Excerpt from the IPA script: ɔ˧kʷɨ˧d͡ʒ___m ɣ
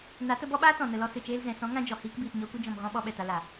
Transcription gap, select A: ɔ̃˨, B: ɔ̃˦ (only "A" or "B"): A